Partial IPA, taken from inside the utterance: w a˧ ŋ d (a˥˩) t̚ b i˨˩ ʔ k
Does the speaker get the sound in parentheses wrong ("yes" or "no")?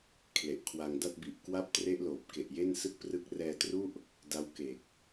no